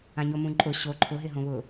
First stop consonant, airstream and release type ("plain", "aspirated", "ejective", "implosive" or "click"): click